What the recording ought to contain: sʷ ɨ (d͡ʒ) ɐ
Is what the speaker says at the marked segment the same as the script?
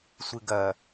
no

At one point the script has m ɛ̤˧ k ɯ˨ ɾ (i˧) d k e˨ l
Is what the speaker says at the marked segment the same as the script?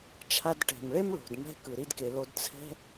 yes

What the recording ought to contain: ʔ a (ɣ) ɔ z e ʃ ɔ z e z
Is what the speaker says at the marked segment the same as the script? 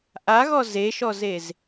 yes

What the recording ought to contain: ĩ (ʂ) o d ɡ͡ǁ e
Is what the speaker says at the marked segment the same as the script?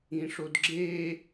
yes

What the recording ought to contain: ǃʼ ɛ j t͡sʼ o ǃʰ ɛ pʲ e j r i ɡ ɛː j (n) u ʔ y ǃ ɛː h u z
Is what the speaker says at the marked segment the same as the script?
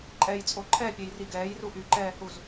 no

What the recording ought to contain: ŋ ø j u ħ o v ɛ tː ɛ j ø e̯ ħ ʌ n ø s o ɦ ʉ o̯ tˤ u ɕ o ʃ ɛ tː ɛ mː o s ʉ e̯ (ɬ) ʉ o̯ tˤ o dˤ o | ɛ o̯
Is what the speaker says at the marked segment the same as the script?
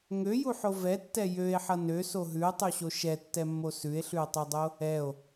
yes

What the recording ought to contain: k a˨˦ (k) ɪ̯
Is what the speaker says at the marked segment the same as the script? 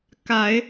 no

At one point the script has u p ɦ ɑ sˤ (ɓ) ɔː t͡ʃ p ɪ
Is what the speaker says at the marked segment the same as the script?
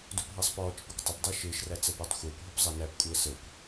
no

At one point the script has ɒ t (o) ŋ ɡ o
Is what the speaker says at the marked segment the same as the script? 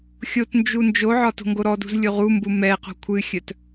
no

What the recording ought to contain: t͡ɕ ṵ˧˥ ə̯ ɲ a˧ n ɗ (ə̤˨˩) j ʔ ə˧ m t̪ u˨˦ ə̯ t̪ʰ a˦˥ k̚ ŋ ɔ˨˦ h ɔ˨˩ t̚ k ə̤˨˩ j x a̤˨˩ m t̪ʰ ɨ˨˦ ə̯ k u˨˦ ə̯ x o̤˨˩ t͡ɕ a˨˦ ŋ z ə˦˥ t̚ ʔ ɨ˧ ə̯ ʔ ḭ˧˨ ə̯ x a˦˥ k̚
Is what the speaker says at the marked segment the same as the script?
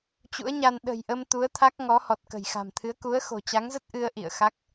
yes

